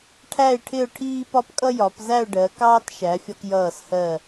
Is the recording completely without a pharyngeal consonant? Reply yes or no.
yes